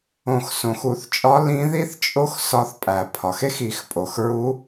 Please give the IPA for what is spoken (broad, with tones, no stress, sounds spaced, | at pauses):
õ˨˩˦ x s õ˩ x u˨˩˦ θ t͡ʃʼ ɒ˧˥ l ĩ˧˥ ð i˥ θ t͡ʃʼ o˥ x s ɒ˧˥ θ pʼ æ˨˩˦ pʰ ɒ˩ x e˥ x i˨˩˦ x pʼ o˩ x ɹ u˧˥